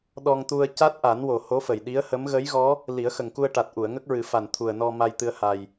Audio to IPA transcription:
ɗ ɔ˧ ŋ t̪ u˧ ə̯ c a˦˥ t̚ ʔ a˨˩˦ n w o˨˩ h o˧˥ f ə˨˩ j ɗ i˧˥ ə̯ h ə˧˥ m ɣ ə˧˥ j ɣ ɔ˧˥ | l i˨˩˦ ə̯ x ə˨˩ ŋ k u˧ ə̯ ʈ a˨˩ t̚ ʔ u˨˩˨ ə̯ ŋ ə˦˥ k̚ ɹ ɨ˨˩˦ f a˨˩ n t̪ʰ u˨˩ ə̯ n ɔ˧ m a˧ j t̪ ɨ˧ ə̯ h a˨˩ j

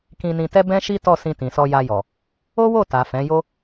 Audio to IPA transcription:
k ĩ˧ n ĩ˧ t ɛ˦ b ɛ̃˦ ʃ i˦ t ɔ˦˨ s ĩ˧ t ĩ˨ s ɔ˧ j a˧ j ɔ˨ | o˦ w o˦˨ t a˨ f ɛ̃˨˦ j o˦

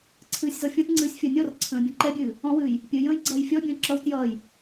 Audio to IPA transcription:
ǀʰ ɨː sʲ z ɔ fʲ ɔ̃ t ŋ͡ǀ ɨː sʲ fʲ ʌ nʲ ɔ r ǀʰ ə̃ː bʲ ɔ̃ ǃ ɛ bʲ ɨː | ɔ̃ w ɨː j | pʲ ɨ j ə̃ː j ɡ͡ǀ ʌː j fʲ ɔ bʲ ə̃ː ǁ ʌ w t j ʌː j

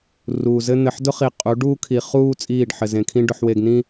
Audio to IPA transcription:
r uː˨ z ɘ˦ n̪ ɘ˨ ħ d ʊ˦ χ i˨ qʼ u˨˦ ɖ uː˦ kʰ i˨ χ uː˦ t͡sʼ iː˦˨ ɖ ħ ɘ˨ z ẽ˨ kʰ ĩ˦ ɖ ʊ˨ ħ w e˨ ɡ n̪ ĩ˦

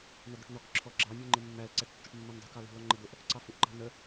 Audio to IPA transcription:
n̪ ʌ d̪ ʊ ʈ n ɔ k ǁʰ ɔ ɡ͡ǁ ɑ mʲ ə˞ ŋ͡ǃ ɪ mː æ l ǀ æ ʈ tː ʊ ʈ mː ɛ n dˤ ṳ k ɑ l ṳ l ɔ ŋ͡ǃ ə d̪ ʊ ʔ | ǀ ɑ f u ʔ ǃ ɑ̤ n ə

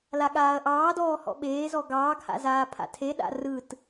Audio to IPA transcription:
l a ɠ aː ɐ̯ ʔ ɑː d ɔː h ɔ̰ ɓ eː z ɔ ɡ ɑː ɡ h a̰ z aː pʰ a̰ tʰ e ɗ a̰ r ɯ t

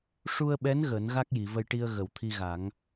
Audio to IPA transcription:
ʂ u˧ ə̯ ɓ ɛ˧˥ n ɣ əː˨˩˦ n ɣ a˦˥ k̚ j i˨˩˨ v ə˧ j ʈ i˧ ə̯ ɣ ə˨˩˨ w t̪ʰ i˧ ɣ a˨˩˦ ŋ

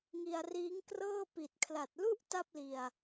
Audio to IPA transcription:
ŋ i˧ a̯ r iː˦˥ ŋ k r ɤː˥˩ p i˨˩ t̚ kʰ l a˨˩ t̚ l u˥˩ ʔ t a˥˩ p̚ l i˧ a̯

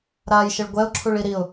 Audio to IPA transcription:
ɾ aː j ʃ ɘ ɭ ɡʷ ɛ ʊ̯ ǁʰ u ɭ i ɾ i ʊ̯

